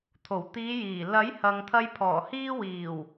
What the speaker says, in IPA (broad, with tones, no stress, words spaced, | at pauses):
t̪ʰo˨˩wt̪iː˨˧jiː˨˩ lɐ˨˥jhɐ˨ŋt̪ʰɐ˧j pʰɔː˨˩hiː˧wiː˨˩w